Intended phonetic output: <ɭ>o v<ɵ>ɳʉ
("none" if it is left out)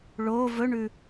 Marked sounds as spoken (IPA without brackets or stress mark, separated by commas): ɭ, ɵ